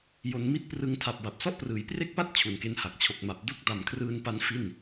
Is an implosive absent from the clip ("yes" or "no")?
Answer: yes